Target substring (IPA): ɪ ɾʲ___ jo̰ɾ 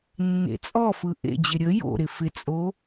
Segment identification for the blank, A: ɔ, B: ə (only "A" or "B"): B